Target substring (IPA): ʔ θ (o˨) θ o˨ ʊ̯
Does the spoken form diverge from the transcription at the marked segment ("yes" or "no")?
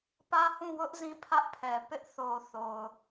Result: no